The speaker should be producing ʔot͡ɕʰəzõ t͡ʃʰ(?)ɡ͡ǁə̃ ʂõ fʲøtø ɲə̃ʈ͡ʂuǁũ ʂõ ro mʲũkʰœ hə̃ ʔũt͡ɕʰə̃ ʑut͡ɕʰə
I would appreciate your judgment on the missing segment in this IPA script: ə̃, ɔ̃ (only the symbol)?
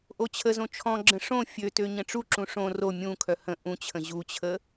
ɔ̃